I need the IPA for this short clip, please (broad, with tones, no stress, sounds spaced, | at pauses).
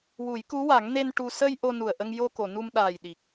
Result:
w u˨˩˦ j k u˧˥ w a˨˩˦ ŋ n e˧ n ʈ u˧ s ə˧ j ʔ o˧ n u˨˩ ə̯ ʔ ə˧ ŋ j o˧ k o˨˩˨ n u˧ m ɗ aː˨˩ j ɗ i˨˩ k̚